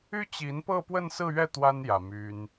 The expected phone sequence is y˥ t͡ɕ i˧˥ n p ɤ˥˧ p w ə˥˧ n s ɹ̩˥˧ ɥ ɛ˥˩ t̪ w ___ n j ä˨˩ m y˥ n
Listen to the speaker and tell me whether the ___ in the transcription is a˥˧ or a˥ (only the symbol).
a˥